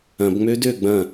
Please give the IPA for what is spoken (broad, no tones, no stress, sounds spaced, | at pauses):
ɐ̃ b ŋ͡m ø d ø ɡ͡b ɐ̃